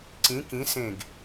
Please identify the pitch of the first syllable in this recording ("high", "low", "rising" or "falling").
rising